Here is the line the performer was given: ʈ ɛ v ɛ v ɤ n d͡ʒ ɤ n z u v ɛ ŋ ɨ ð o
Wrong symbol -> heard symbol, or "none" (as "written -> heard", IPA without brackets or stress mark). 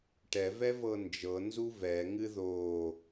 none